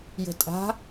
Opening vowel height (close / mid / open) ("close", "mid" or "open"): mid